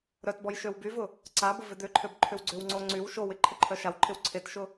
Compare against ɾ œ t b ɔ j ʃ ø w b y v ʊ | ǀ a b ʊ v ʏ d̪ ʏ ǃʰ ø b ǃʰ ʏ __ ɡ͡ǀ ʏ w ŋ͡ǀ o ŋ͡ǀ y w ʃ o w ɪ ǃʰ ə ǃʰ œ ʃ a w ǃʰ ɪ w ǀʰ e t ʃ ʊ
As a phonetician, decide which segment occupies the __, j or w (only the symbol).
w